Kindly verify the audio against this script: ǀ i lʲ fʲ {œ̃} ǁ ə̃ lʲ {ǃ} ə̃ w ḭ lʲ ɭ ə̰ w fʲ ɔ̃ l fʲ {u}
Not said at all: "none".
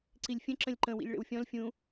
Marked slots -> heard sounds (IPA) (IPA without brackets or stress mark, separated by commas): ə̃, ǃ, ũ